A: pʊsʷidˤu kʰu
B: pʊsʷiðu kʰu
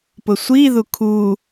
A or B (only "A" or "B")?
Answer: B